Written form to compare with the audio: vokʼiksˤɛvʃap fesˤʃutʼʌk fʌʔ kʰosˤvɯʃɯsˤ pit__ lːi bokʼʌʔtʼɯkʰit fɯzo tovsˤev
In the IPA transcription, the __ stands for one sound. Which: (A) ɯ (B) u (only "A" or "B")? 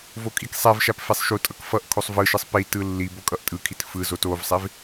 A